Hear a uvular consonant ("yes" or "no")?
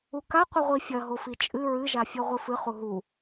yes